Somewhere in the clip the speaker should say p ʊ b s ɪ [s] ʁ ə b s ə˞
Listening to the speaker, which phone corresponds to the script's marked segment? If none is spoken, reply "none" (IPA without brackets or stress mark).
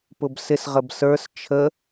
s